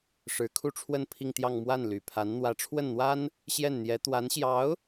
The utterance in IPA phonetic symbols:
ʂ ɻ̩˧˥ kʰ u˥˧ ʈ͡ʂʰ w ə˥˧ n pʰ i˥˧ ŋ t̪ j ɑ˥˧ ŋ m w a˥˩ n l y˨˩ pʰ a˧˥ n n̪ w ä˧˥ ʈ͡ʂʰ w ə˥˩ n n̪ w a˥ n | ɕ j ɛ˥˩ n n̪ j ɛ˧˥ t̪ w a˧˥ n ɕ j ɑ˧˥ ʊ̯

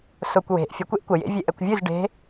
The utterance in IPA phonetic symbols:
s ʊ kʷ w e̤ ʔ fʲ ə kʷ e ʔ kʷ ə j ḛ vʲ e ʔ ɛ kʷ vʲ ɨ z ɖ e̤

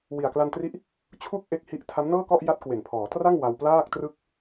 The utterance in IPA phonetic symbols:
w i˨˩ a̯ k l a˧ n t r i˦˥ ʔ | t͡ɕʰ u˥˩ k̚ ʔ e˦˥ k̚ h i˦˥ ʔ tʰ a˦˥ m n ɤː˥˩ k ɔ˥˩ ʔ j a˦˥ t̚ k w e˨˩ n pʰ ɔː˩˦ t r a˥˩ ŋ w a˧ w p l aː˥˩ k̚ t r ɯ˥˩ k̚

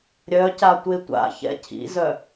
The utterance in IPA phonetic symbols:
ɾʲ œ c a tʷ e tʷ a̰ ç ɛ̰ cʰ ḭ z œ

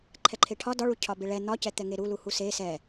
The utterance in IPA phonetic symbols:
ǃʰ ɛ ǃʰ e ʈʰ ɒ d ɒ ɭ u cʰ ɒ b e ɭ ɛ n̪ ɒ c ɛ t̪ ɛ ŋ e ɾ u l u h u s e s ɛ

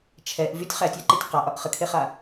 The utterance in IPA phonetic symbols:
t͡ʃʰ ɛ ʔ v y tʲ χ æ tʲ a ǃ e tʲ q a ʔ ɒ ʔ χ ə kʰ e χ a

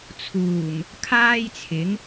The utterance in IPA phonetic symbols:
t͡sʰ uː˨˩ ŋ | kʰ aː˥ j t͡sʰ ɪ˨˥ ŋ

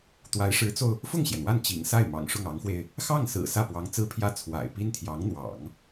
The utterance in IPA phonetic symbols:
t̪ w a˧˥ ɪ̯ ʂ ɻ̩˧˥ t͡s o˧ ʊ̯ | f ʊ˥˩ ŋ ɕ j ɛ˩ n w a˥˩ n t͡ɕ ḭ˨˩ ŋ s a˥˩ ɪ̯ m ɑ̰˨˩ ŋ ʂ ʊ˥˩ ŋ ɑ˧˥ ŋ x w e˧ ɪ̯ | x ɑ˥˩ ŋ s ɹ̩˨˩ s ä˥˩ p w ɑ˧˥ ŋ t͡s ɹ̩˥ pʰ j ä˥˩ t͡sʰ w a̰˨˩ ɪ̯ p i˥ n t̪ʰ j ɑ˧˥ ŋ n̪ w ɑ̰˨˩˦ ŋ

